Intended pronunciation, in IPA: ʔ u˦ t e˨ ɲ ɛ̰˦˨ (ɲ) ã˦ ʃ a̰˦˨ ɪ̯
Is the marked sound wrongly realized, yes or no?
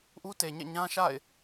no